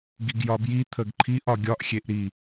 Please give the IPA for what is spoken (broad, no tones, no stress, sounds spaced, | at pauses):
ɡ i ɡ j ɒ b j i t̪ʰ ə ɡ ǃʰ i ʔ ɒ ɡʲ ɒ ʔ xʲ e ʔ ɾ i